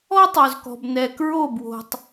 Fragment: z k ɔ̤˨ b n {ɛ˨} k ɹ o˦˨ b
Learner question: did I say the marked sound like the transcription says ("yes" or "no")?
yes